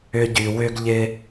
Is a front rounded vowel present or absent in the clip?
present